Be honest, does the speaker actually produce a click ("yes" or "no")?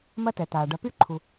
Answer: yes